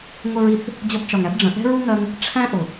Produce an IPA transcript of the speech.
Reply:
ŋʷə˧ɹi˨θ | d͡ʑʌ˧bt͡ʃɒ˨ŋæ˦bɖ͡ʐə̃˨ ʔɛ̤˦ɹu˦ŋɜ˧ŋ | ʈ͡ʂʰæ̃˦ ʔʊ˨

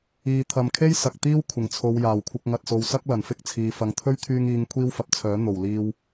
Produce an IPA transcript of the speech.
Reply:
iː˨ t̪ʰɐ˨mkʰe˥j sɐ˨k̚t̪iː˥w kʷʰɪ˨˩ŋt͡sʰo˨˧wjaː˨˩wkʷʰɪ˧k̚ ŋɐ˨t̚so˨wsɐ˥k̚ lɐ˨˩nfɪ˥k̚t͡sʰiː˨ fɐ˨ŋ t̪ʰɵ˥ɥt̪ʰyː˧ŋ iː˨˧ŋ kʷʰiː˥wfɐ˨p̚t͡sʰœː˨˥ n̪o˨˩w liː˧w

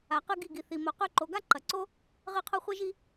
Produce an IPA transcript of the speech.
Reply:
a˨qɨ˧ ɡi˦˨ɡi˨θi˨mo˨ qʉ˧ǃo˨ɡa˦ ǃɐ˨ǀo˦ | ʁɨ˦˨qʰo˦χʷi˦ ʒi˧

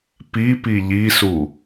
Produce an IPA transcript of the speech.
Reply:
pipi ʎisu

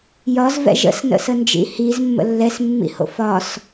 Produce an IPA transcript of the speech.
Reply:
jɒzvɛ̰ʒ ə̰snə̰sənd͡ʒḭ hizmːə̰ lːɛsmːḭho̰ fɒs

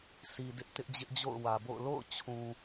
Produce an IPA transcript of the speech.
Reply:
sʰi˨ dɪ˦ʔtɪ˦ʔd͡ʑɪ˦ʔd͡ʑo̰˦˨ʊ̯ wä˨bo̰˦˨ʊ̯ lo̰˦˨ʊ̯t͡ɕʰũ˨

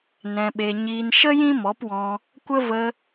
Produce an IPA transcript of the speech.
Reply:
nɛ̃˧ɓe˧ ɲiː˧nʃə˦ jĩ˦mɔ˨˦pwɔ̃˧ | kʷə˦ və˧

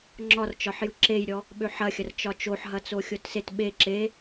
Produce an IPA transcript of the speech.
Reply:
ŋ͡ǁɒrt͡ʃɒħ jɯǁejɾʲɔ | ɓøħɐxʲɐr t͡ʃɒt͡ʃoħɦɐt͡so xʲotset ɓe ǁe

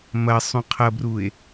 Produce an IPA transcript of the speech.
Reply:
mɐ sˤũqʰɐbrue̯

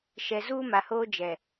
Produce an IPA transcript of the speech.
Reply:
ʃɛ˨ zuː˦ma˨hoː˦ d͡ʒɛ˨

